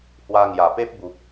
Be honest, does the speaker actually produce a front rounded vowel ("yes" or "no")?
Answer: no